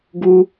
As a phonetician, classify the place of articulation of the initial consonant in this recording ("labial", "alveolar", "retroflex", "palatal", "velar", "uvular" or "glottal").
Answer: velar